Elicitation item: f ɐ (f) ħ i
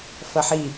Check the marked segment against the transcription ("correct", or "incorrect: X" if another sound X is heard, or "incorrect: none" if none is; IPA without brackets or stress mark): incorrect: none